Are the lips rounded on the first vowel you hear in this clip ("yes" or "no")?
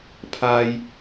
no